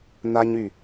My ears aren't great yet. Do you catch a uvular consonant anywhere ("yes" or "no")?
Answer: no